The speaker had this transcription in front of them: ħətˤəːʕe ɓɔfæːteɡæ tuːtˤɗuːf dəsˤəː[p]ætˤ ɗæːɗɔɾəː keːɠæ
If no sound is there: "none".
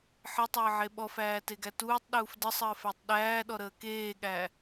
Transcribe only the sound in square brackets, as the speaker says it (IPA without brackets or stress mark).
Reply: f